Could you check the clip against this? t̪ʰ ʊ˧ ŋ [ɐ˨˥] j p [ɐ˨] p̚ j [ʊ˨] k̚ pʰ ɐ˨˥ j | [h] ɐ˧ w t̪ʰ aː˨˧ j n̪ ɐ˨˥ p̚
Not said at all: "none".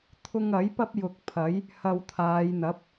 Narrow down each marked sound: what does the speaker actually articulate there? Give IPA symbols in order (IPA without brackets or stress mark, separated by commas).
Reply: ɐ˨˥, ɐ˥, ʊ˨, h